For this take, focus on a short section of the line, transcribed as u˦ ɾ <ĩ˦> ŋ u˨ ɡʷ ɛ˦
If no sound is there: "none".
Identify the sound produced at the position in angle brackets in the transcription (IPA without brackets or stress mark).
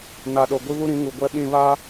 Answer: ĩ˨˦